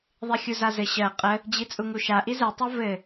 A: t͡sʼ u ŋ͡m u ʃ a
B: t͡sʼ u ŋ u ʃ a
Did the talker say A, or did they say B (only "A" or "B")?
B